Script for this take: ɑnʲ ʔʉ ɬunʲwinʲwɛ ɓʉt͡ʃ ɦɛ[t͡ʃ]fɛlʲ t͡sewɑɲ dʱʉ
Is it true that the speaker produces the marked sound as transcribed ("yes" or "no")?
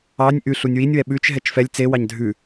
yes